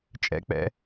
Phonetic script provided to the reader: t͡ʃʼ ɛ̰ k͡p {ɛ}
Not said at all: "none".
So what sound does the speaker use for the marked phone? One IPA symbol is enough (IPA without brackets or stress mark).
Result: ɛ̰